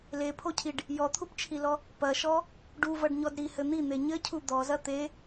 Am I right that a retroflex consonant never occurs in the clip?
no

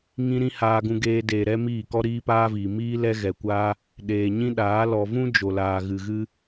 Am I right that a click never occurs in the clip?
yes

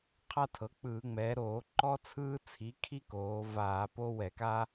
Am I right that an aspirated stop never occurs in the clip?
no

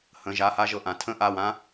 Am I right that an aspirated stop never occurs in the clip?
no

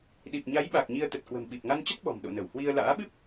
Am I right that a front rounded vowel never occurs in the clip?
yes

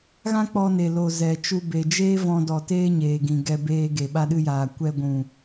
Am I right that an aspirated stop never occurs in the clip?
yes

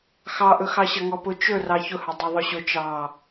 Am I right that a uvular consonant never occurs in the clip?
yes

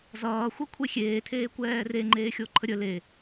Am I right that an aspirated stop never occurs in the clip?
no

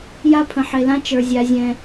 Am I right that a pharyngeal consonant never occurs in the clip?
no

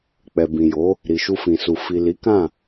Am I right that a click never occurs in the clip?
yes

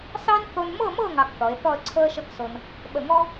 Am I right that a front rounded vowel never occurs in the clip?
yes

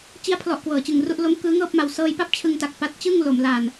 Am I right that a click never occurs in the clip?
yes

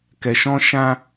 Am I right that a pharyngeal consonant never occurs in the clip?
yes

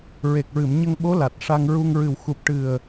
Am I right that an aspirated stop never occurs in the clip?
yes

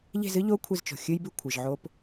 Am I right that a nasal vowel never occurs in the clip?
yes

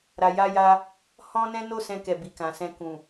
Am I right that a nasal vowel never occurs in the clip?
no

